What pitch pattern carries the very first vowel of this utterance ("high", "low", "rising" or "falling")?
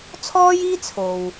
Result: high